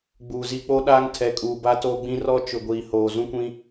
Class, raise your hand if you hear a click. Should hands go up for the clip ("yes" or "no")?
no